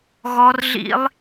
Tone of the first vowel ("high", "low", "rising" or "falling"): high